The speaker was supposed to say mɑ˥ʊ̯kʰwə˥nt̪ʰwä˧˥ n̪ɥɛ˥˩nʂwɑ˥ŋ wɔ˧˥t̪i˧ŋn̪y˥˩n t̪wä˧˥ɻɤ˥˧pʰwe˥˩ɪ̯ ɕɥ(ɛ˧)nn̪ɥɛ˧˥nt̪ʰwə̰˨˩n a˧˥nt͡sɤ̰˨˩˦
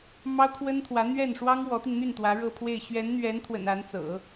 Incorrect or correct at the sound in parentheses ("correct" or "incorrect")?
incorrect